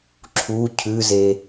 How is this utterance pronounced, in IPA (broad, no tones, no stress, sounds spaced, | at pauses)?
ǁʰ u cʰ ʉ z e